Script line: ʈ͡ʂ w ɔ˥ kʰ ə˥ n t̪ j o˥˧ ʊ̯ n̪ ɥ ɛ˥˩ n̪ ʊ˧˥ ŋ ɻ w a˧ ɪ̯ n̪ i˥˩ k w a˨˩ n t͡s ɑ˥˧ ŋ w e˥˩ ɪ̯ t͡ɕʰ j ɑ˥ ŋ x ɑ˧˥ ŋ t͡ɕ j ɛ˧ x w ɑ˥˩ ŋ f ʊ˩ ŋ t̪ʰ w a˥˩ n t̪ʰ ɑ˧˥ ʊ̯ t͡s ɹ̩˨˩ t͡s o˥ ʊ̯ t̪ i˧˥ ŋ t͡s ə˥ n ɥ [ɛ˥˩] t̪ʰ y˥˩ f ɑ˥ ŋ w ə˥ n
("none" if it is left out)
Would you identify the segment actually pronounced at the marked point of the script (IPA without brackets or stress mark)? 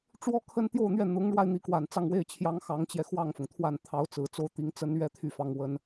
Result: ɛ˥